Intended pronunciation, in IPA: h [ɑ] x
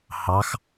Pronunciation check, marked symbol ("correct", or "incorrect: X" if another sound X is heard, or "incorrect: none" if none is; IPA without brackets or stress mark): correct